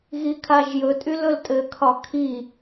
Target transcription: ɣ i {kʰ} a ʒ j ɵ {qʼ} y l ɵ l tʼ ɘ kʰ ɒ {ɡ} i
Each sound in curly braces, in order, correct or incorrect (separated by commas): correct, incorrect, incorrect